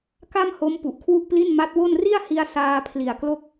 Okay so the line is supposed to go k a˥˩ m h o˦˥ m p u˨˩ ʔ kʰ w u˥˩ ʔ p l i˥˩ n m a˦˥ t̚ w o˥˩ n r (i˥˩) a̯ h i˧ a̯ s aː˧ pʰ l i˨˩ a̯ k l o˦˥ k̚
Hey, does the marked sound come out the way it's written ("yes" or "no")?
yes